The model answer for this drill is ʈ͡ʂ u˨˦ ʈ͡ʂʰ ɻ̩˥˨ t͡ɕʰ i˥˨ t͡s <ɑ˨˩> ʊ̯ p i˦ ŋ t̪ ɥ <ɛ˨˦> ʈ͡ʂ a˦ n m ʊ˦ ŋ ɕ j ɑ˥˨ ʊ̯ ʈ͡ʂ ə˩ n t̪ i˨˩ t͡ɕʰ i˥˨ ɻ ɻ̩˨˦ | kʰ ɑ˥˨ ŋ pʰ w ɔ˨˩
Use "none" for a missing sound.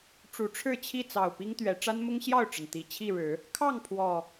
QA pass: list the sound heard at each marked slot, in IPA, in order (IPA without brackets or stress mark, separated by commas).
ɑ˨˩, ɛ˨˦